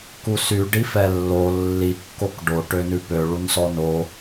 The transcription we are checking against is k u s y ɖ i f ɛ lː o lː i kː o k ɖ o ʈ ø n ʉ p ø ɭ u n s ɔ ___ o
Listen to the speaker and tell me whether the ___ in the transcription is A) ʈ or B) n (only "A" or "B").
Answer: B